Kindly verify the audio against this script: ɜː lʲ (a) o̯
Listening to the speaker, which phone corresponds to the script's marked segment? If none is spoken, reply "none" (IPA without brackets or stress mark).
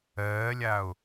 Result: a